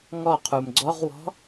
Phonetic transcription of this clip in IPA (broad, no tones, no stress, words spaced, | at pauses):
ŋɔqʰum ɡ͡ǀɔʁwɔ̤